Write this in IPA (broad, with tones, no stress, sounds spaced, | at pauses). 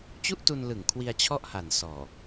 t͡ɕ u˥˩ ʔ t u˧ n l ɯ˨˩ ŋ kʰ w i˧ a̯ t͡ɕʰ ɔ˥˩ ʔ h a˨˩ n s ɔː˨˩